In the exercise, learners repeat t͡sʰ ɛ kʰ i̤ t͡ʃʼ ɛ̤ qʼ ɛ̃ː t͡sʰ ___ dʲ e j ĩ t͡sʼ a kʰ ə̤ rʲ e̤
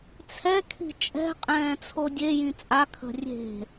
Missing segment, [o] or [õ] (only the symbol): o